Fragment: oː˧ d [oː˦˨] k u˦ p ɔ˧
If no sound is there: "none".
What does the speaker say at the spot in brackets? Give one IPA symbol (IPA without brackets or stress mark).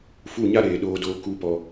oː˧